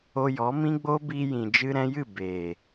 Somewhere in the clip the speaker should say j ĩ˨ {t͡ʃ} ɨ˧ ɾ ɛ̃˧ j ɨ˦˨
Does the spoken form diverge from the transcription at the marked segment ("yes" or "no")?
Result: yes